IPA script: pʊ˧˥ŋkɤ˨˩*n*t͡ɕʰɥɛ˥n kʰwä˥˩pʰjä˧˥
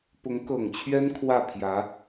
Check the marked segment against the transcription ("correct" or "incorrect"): incorrect